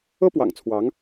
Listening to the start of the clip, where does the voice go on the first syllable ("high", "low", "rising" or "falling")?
high